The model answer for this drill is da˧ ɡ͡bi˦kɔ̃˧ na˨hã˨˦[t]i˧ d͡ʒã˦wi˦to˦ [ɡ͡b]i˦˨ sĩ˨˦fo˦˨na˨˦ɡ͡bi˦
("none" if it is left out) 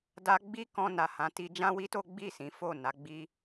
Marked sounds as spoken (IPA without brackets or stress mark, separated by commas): t, ɡ͡b